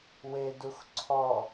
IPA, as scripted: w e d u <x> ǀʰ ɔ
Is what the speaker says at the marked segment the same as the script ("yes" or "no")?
yes